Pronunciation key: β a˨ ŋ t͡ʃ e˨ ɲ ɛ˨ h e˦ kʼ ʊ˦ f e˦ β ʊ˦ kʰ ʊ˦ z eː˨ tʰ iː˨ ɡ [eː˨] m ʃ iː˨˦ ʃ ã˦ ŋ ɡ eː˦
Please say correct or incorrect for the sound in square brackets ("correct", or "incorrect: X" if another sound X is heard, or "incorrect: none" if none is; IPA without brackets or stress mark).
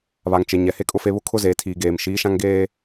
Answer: correct